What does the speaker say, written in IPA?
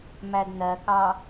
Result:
m æ d n ɜ k ɑ

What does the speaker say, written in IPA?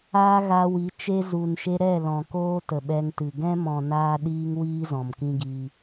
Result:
aː˦ ɣ a˧ w i˨˦ t͡ʃ e˧ z u˨ n ʃ e˧ ɾ ɛ˦˨ l ɔ̃˨ k oː˦ t ə˨ ɓ ɛ˧ ŋ t ɨ˨ ɡ ɛ̃˦ m ɔ̃˨ n aː˦ ɗ iː˦ ŋ w iː˦ z ɔ̃˨ m k ĩ˦ ɡ i˧

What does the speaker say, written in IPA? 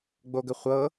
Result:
ɡ͡b o ɡ ə χʷ ɤ

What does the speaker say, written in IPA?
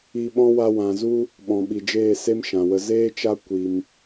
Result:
i˧ ɓ ɔ̃˦ w a˧ w ã˨ z u˦ | ɓ ɔ̃˨ ɓ i˨ d͡ʒ eː˦˨ s e˦ m ʃ ã˨ w ə˧ z eː˦ t͡ʃ a˦ kʷ i˧ m

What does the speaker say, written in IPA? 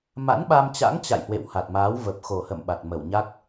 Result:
m a̰˧˥ n ɓ a˧ m t͡ɕ a̰˧˥ ŋ t͡ɕ a̰˧˨ j h w ḛ˧˨ w h a˨˩ t̚ m aː˨˦ w v ə˨˩ p̚ x o˨˩ h ə̰˧˨ m ɓ a˨˩ t̚ m ə˧˩ w ɲ a˦˥ k̚

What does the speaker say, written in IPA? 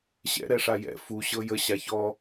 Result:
ɕ ɛ̰ ɾ ɛ ʂ a j ɛ̰ f u ɕ ɤ j ə ɕ a ç ɔ

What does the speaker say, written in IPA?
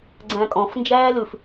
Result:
ɡ͡ǀ æ̃ kʼ ɔ̃ f n d͡ʒ æː l ʉ f

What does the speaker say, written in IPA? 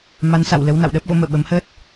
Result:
m a˨˦ n s a̰˧˨ w l ə˨˦ w n a̰˧˨ w ɗ əː˦˥ p̚ ɣ o̰˧˥ m ə̰ː˧˨ ɓ ə˨˦ m h əː˦˥ t̚

